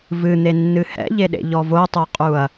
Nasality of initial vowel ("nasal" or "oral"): oral